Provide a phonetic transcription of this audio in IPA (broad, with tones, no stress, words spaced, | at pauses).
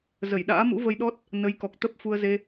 zə˧˩jɗa̰ː˧˥mṵ˧˥ və˧jɗɔ˦˥t̚ | nə˨˦jkɔ˨˩k̚t̪ə˦˥p̚ fu˧ə̯ze˧